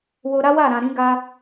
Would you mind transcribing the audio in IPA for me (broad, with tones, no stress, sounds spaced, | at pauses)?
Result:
w o˧ ɾ a˦ w a˦˨ ɾ ã˨ ɾ ĩ˨˦ ɡ a˧